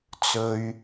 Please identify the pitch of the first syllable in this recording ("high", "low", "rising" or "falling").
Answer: low